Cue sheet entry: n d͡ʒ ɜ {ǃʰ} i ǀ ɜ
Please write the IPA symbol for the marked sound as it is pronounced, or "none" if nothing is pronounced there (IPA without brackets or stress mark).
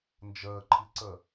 ǃʰ